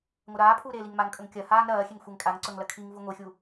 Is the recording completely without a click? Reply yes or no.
no